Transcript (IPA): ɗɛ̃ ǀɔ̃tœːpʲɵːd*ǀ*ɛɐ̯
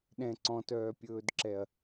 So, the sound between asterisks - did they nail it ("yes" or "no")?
no